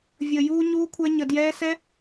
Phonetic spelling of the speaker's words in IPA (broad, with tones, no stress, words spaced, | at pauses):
vʲəː˧juː˦ ɲuː˦kʷʰɛ˦ ɲə˧djɛː˦ sɛ˦